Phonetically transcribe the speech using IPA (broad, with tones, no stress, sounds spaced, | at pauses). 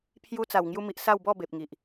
pʰ j u˧ t͡s a˨˩ w ŋ j u˧ m i˨ ʔ s a˥˧ w b ɔ˥˧ b e˨ p̚ ŋ i˨ ʔ